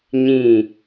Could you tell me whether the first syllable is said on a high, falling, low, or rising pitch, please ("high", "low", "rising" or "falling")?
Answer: falling